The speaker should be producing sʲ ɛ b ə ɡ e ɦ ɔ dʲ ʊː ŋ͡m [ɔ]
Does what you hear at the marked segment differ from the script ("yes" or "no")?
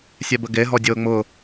yes